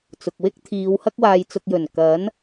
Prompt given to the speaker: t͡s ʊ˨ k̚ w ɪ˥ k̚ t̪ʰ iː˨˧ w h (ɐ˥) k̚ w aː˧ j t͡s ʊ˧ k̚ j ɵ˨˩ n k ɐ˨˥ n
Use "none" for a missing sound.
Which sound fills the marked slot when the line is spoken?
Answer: ɐ˥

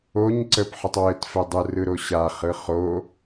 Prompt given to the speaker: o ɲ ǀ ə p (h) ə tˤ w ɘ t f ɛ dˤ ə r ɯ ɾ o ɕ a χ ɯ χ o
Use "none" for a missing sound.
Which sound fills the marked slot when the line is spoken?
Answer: ħ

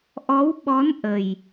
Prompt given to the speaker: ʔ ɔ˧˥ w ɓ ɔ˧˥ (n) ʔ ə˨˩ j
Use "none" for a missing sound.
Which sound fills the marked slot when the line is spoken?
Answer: n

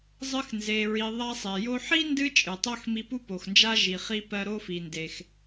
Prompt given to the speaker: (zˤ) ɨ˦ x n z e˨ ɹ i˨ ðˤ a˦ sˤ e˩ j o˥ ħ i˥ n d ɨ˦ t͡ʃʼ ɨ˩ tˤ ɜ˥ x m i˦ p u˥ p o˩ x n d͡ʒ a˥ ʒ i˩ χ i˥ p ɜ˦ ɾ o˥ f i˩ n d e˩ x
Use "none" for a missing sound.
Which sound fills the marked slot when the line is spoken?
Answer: zˤ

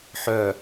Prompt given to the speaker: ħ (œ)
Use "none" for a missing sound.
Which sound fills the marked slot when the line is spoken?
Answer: œ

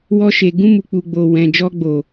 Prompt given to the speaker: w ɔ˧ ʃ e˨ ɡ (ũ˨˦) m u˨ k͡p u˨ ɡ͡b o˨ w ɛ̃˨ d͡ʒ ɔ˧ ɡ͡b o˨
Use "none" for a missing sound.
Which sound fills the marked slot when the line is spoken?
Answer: ũ˧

